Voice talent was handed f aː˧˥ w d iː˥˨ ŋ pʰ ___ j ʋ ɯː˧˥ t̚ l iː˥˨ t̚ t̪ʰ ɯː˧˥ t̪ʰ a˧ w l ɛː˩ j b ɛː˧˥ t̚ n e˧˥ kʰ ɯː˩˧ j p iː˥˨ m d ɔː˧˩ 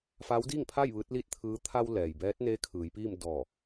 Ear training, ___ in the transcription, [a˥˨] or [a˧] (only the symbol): a˥˨